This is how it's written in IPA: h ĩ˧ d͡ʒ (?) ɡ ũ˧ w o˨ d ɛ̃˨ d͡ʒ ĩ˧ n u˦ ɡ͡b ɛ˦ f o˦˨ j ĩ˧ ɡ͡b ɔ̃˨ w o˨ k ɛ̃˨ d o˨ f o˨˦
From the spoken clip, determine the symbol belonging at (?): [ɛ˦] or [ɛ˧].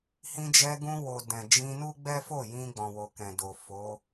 ɛ˧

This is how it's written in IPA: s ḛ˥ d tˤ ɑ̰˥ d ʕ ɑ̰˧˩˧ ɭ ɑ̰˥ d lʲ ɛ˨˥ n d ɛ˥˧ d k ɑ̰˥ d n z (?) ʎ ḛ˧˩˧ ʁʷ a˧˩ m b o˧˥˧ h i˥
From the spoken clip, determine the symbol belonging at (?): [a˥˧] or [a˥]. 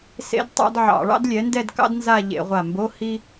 a˥˧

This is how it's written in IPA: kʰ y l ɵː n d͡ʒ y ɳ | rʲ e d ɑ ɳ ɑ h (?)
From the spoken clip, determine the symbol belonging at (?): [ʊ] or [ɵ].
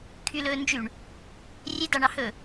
ɵ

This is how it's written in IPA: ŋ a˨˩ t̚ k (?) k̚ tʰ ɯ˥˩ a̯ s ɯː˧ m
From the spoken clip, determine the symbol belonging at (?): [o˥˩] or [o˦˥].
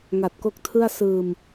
o˦˥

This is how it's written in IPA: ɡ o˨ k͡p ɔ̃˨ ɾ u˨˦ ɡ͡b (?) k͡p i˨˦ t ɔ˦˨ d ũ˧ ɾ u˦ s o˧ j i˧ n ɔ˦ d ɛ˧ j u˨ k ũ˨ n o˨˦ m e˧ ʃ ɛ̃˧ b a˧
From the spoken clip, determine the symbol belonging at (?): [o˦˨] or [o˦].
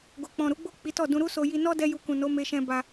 o˦˨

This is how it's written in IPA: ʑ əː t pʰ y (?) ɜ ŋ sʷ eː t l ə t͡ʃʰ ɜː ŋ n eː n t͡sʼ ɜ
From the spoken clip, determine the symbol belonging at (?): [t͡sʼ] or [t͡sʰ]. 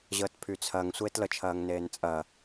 t͡sʰ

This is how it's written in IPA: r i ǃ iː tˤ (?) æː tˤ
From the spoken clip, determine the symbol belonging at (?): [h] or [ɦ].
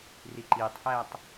h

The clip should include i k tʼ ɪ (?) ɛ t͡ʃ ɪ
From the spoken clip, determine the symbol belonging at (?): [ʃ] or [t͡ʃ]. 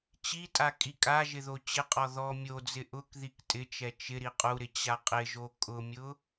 t͡ʃ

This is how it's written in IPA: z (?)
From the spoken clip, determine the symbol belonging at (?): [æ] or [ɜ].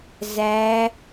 æ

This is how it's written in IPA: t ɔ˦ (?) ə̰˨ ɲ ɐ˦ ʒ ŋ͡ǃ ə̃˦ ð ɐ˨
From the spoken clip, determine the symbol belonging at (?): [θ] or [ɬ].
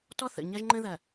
θ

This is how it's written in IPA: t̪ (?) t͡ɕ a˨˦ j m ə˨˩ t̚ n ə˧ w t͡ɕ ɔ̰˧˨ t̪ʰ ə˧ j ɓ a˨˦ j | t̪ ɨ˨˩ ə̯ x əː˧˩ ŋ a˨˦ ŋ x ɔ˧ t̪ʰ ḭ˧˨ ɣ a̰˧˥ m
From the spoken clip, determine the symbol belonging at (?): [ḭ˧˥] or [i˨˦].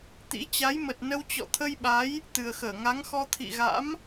ḭ˧˥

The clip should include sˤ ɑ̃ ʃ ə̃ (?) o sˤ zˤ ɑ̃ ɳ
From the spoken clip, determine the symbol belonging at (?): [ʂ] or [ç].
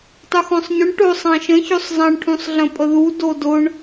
ç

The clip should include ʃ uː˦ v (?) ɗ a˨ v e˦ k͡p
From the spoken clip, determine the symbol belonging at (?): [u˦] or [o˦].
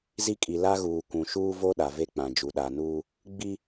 o˦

